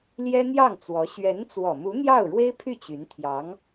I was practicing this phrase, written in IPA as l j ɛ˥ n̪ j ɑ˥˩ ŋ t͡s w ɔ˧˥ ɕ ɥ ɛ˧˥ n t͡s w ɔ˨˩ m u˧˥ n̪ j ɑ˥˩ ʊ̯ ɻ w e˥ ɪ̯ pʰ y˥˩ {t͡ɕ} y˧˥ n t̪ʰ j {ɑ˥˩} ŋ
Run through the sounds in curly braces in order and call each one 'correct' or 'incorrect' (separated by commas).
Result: correct, incorrect